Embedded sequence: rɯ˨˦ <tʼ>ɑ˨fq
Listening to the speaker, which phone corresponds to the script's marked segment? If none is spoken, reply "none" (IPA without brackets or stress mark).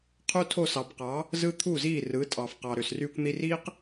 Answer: tʼ